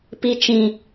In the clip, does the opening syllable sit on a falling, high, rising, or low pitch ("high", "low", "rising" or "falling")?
high